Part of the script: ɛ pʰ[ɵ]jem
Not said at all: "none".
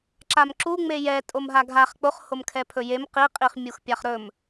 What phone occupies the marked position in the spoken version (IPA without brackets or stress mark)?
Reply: ɵ